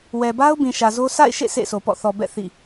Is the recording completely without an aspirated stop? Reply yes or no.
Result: yes